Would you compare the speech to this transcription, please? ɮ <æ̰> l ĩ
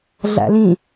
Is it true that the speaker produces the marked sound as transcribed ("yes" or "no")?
yes